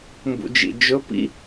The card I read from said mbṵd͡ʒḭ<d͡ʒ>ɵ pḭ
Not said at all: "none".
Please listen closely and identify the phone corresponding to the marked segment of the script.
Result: d͡ʒ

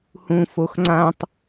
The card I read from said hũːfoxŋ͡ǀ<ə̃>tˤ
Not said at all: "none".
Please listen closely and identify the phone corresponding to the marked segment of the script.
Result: ã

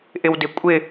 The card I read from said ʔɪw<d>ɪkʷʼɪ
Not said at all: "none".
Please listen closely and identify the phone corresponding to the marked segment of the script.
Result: d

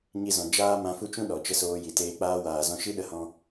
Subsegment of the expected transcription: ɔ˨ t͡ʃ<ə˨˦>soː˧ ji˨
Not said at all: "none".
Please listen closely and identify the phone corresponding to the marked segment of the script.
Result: ə˧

